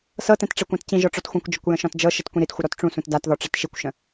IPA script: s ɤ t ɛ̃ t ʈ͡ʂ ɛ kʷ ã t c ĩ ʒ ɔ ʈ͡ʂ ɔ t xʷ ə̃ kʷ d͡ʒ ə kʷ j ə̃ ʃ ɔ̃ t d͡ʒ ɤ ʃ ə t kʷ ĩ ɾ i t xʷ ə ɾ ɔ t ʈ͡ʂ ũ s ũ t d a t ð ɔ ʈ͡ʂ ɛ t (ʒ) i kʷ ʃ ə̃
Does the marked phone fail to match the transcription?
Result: yes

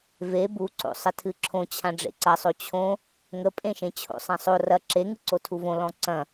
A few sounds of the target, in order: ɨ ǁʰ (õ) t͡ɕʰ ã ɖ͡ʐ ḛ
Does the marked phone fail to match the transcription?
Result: no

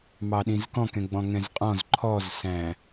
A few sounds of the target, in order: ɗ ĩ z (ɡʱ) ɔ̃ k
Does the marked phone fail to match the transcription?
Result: yes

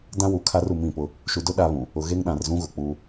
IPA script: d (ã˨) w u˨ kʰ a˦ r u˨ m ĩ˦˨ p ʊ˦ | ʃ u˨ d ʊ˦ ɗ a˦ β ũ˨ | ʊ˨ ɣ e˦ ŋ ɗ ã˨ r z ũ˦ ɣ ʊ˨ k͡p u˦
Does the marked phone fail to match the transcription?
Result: yes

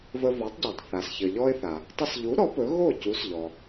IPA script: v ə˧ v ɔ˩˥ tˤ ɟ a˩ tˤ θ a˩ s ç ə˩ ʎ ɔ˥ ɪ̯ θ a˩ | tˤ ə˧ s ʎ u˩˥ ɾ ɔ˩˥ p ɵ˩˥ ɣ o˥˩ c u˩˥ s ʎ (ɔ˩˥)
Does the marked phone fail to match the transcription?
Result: yes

